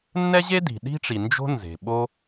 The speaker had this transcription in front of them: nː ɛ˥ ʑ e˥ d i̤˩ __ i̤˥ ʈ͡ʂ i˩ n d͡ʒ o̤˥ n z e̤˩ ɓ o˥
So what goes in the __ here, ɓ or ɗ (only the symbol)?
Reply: ɗ